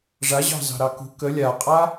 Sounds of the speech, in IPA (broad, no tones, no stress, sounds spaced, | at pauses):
ʐ a ʑ ɑ̤ z ɑ̤ ɾ ɑ k ṳ k ə lʲ a qʼ a